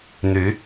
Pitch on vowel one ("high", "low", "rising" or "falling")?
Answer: rising